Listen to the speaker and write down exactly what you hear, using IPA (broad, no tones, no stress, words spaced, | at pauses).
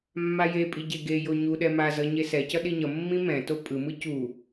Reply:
mːajepʼi ɟeɡejo ɲuɗɛ mazʌ ɲesɛcʌ ɗiɲʌmːĩ mɛ̃to pʼɯmɯ cu